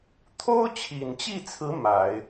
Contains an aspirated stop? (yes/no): yes